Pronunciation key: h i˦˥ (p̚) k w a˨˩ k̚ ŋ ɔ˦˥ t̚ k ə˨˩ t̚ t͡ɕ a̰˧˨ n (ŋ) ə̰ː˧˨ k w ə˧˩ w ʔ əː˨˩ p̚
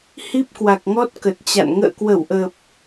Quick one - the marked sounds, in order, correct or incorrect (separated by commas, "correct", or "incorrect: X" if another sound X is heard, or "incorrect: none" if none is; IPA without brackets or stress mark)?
correct, correct